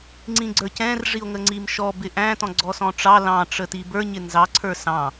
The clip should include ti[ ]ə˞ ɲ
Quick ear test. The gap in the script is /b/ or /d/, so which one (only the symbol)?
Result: b